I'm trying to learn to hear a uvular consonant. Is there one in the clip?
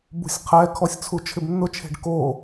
yes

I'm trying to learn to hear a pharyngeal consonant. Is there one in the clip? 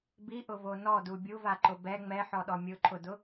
yes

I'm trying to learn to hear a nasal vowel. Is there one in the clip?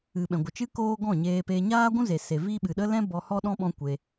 yes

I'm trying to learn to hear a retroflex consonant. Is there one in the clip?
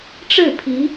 yes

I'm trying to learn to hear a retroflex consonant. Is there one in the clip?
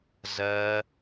no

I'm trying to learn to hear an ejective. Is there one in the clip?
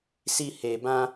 no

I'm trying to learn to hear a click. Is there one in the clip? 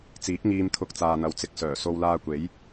no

